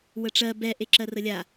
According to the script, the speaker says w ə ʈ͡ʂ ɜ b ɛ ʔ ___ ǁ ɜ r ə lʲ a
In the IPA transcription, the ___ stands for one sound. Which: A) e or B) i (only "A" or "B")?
A